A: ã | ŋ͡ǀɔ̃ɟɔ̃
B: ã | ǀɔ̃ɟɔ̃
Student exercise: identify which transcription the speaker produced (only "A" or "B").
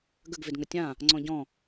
A